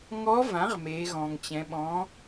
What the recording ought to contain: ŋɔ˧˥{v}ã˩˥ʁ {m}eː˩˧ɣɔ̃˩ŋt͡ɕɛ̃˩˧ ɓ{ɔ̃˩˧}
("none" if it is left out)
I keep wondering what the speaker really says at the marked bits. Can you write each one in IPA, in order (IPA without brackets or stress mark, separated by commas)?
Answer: v, m, ɔ̃˩˧